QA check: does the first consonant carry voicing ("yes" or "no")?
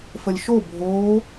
no